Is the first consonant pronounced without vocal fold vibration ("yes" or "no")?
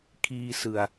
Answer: yes